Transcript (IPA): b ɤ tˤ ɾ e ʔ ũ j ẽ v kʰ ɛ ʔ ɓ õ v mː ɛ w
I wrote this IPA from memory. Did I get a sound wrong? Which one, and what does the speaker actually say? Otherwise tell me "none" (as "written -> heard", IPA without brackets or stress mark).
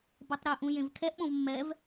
w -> v